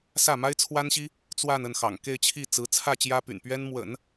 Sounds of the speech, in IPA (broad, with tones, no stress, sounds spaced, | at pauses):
s ä˥˩ m a˥ ɪ̯ t͡sʰ w a˥ n ɕ i˥ | t͡s w a˥˧ n ə˥˩ n x ɑ̰˨˩ ŋ k e˥˧ ɪ̯ t͡ɕʰ i˥˩ t͡s ɹ̩˧˥ t͡sʰ ä˥˩ t͡ɕ j ä˥ p y̰˨˩ n p ɥ ɛ˥ n m w ə̰˨˩˦ n